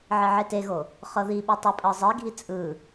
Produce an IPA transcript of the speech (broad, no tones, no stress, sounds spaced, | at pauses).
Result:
ʕ e ʕ e t e ɣ o | χ ɤ ð i ɓ ɯ tˤ ɛ pʼ ɤ zˤ e ɡʱ i t͡sʼ ɯ